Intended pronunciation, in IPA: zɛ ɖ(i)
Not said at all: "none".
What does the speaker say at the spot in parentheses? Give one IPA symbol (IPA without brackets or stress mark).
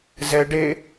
e